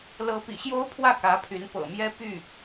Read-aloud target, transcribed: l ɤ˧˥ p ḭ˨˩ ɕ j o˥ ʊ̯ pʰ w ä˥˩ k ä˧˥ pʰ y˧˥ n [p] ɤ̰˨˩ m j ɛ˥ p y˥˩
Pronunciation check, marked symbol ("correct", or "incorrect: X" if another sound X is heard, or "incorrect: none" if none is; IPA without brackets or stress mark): correct